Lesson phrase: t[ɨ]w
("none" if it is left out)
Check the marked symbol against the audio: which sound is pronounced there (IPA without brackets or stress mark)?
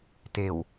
e